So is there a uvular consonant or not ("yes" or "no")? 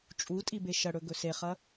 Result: yes